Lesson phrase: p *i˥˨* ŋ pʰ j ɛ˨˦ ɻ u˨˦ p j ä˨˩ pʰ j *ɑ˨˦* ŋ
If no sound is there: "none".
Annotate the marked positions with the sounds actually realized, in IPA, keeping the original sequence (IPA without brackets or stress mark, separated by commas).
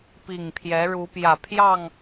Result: i˨˩, ɑ˥˨